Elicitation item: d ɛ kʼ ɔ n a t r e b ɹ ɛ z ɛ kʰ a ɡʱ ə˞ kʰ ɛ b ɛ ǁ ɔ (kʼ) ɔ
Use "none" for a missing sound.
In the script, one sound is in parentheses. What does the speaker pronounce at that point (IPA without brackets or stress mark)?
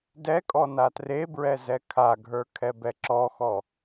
x